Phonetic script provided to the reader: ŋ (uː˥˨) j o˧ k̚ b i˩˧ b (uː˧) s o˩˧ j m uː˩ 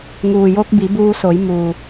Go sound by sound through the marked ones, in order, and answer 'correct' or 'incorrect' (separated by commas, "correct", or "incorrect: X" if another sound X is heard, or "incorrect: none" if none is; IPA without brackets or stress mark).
incorrect: uː˩, correct